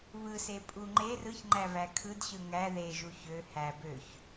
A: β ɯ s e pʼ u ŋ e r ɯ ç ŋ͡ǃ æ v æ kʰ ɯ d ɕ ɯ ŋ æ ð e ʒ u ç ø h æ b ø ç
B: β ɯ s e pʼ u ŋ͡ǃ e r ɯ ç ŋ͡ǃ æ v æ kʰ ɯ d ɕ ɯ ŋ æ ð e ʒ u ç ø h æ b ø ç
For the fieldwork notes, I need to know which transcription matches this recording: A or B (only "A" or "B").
B